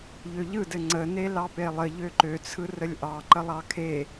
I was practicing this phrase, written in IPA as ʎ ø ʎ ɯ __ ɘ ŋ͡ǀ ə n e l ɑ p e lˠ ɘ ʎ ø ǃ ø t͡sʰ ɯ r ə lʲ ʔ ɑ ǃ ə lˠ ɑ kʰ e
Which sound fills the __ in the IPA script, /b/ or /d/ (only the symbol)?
d